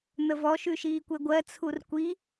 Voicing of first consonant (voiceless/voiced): voiced